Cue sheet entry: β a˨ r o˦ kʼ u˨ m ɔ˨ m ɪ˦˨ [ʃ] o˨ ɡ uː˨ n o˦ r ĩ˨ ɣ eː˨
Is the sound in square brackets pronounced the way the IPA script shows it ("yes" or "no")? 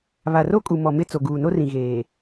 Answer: no